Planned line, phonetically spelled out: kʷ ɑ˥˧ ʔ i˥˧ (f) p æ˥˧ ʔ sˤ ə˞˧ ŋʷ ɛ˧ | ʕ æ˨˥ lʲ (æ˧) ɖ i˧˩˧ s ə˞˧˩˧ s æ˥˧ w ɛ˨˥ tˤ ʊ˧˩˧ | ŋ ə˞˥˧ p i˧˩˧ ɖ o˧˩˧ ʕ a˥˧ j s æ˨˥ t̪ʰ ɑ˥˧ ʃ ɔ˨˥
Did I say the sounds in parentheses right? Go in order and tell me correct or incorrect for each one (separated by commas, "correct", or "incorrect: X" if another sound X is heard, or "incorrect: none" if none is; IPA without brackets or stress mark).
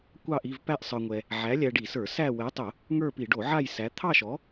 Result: incorrect: v, correct